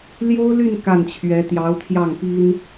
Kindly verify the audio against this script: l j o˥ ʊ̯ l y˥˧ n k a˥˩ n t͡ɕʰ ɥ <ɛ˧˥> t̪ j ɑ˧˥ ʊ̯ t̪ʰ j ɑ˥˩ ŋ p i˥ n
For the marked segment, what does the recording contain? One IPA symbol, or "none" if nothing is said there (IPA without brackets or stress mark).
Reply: ɛ˧˥